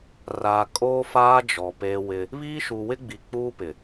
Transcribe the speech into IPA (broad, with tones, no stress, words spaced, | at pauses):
raː˨ kʼoː˦faː˦d͡ʒɔ˨ peː˦wɪ˦ | βiː˦ʃu˨wɪ˦ɡ͡bi˨ k͡puː˦pɪ˨